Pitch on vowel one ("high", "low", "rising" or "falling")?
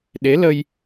rising